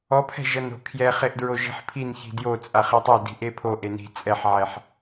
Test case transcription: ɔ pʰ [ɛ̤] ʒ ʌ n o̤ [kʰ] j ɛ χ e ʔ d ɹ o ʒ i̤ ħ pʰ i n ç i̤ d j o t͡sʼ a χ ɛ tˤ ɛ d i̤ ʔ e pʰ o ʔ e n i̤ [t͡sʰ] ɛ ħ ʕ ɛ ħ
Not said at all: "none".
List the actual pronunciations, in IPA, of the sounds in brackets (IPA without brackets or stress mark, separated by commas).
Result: ɛ̤, kʰ, t͡sʼ